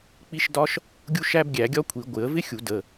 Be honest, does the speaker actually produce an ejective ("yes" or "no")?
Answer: no